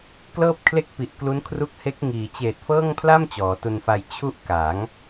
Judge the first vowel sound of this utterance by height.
mid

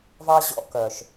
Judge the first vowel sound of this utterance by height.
low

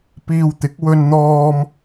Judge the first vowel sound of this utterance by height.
high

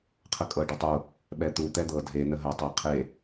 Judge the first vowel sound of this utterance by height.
mid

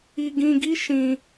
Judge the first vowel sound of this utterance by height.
high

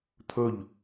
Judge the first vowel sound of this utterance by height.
mid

